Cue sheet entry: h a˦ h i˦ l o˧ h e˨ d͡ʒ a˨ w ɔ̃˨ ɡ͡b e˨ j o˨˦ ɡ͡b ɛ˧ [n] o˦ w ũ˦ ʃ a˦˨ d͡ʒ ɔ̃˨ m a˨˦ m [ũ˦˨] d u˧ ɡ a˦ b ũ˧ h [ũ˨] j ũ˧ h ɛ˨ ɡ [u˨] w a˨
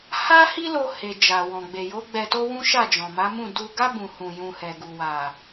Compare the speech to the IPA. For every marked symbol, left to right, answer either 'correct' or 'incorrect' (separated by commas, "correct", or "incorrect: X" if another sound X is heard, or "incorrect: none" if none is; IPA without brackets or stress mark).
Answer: incorrect: t, correct, incorrect: ũ˧, correct